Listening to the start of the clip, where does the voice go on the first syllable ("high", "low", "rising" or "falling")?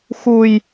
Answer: low